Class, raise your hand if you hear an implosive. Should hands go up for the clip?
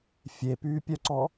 no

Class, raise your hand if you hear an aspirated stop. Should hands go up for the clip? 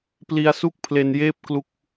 yes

